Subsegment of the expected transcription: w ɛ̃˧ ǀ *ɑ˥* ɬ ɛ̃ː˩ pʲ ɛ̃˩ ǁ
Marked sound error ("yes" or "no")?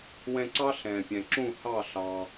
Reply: no